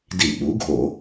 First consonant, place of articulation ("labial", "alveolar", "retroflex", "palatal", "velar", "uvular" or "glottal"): alveolar